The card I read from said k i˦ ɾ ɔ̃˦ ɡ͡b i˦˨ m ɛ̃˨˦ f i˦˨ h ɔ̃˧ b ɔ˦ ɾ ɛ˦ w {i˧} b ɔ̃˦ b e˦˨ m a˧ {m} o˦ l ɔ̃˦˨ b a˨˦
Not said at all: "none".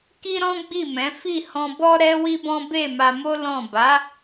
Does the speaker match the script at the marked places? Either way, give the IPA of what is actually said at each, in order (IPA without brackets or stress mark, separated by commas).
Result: i˦, m